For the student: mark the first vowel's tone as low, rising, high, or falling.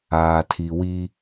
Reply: low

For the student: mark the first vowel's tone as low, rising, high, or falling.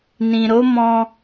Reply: low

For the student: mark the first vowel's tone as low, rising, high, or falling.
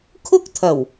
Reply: high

